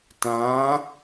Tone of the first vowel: rising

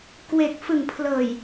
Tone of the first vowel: low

